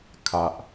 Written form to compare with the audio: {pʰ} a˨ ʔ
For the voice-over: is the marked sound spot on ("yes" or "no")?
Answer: no